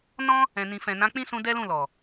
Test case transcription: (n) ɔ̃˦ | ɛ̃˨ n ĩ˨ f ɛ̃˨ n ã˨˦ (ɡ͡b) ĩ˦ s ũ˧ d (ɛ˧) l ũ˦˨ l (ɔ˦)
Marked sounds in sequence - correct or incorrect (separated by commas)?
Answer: correct, incorrect, incorrect, incorrect